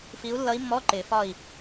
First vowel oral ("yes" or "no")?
yes